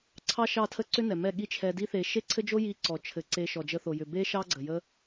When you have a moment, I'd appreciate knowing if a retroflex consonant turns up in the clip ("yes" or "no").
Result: no